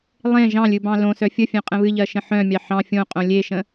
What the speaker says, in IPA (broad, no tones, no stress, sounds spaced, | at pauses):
lˠ ẽ ʒ ɑ̃ lʲ ɨ b ɑ̃ l õ s œ fʲ ə fʲ œ̃ qʼ ə̃ β ɨ ʎ ɜ ʃ ə̃ ħ œ̃ mʲ ɑ ħ ɑ̃ fʲ õ qʼ õ lʲ e ʃ ə̃